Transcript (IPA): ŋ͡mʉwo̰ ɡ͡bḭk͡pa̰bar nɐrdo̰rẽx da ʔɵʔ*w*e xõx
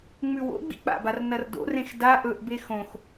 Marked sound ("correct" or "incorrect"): incorrect